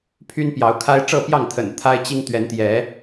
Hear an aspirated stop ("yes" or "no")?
yes